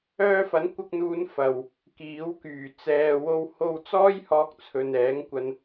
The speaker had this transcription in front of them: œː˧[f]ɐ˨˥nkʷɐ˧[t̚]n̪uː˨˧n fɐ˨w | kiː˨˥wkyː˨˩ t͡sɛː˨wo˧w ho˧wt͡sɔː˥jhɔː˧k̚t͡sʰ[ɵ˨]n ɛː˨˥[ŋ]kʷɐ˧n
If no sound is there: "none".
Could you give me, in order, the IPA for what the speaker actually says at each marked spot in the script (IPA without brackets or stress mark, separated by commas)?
f, k̚, ɵ˨, ŋ